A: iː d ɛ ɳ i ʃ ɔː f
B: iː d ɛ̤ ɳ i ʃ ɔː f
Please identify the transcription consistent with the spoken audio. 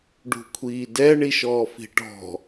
A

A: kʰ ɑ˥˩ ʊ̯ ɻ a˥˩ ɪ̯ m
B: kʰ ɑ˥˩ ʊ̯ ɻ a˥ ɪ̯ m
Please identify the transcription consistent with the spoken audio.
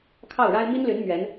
B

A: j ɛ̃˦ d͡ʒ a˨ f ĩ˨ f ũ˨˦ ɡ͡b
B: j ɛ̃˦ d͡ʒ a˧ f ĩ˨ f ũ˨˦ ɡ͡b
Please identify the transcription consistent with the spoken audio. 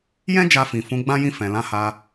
B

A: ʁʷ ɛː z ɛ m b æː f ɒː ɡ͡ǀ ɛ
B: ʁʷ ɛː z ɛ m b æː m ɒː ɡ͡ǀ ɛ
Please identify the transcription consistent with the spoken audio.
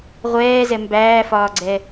A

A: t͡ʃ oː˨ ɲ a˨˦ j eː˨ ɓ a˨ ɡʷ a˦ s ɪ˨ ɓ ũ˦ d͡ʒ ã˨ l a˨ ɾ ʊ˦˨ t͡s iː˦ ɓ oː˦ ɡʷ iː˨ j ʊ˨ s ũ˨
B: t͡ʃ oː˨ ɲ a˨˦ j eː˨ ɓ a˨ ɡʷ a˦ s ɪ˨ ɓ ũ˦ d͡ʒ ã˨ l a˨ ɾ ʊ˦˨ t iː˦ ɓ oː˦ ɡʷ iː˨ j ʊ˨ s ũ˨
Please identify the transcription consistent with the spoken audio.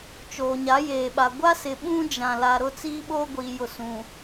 A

